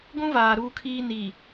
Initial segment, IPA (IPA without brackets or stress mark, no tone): ɡʷ